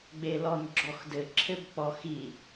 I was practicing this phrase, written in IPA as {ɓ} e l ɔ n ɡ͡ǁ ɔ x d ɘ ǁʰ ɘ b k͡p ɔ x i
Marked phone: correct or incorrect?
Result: incorrect